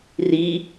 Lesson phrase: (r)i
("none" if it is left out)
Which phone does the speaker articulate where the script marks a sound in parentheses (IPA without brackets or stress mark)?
r